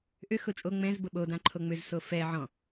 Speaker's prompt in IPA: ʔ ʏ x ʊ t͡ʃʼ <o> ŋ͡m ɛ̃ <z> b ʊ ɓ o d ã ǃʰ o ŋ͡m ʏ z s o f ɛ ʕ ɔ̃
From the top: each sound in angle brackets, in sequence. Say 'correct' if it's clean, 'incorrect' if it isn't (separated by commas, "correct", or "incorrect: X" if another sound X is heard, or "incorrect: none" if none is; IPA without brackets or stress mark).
correct, correct